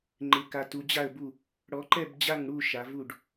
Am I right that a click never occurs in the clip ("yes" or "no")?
no